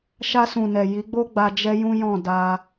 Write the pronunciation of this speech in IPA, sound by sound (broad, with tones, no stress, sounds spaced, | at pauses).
ʃ a˧ s ũ˨ n ɛ˨ j i˨˦ ɡ͡b o˦ ɡ͡b a˧ d͡ʒ ɛ˦ j ũ˦ j ɔ̃˦˨ d a˧